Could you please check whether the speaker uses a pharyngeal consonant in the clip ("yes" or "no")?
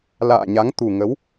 no